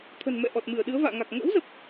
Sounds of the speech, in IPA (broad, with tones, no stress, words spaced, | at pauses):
t̪ʰə̤˨˩nmɛ̰˧˨ ʔɔ˨˩t̚mɨ˧˩ə̯ ɗɨ˨˦ə̯va̰ː˧˨ŋa˨˩k̚ ŋə̰ː˧˥wzə˨˩p̚